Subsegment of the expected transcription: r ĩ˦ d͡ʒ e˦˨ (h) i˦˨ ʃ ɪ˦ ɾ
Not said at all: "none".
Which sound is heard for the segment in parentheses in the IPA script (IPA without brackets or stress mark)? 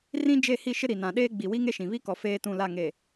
h